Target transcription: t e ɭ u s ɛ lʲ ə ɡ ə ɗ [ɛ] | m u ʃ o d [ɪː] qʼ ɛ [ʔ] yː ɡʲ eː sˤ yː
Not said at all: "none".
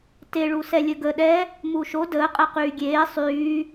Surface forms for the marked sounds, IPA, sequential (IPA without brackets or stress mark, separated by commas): ɛ, əː, q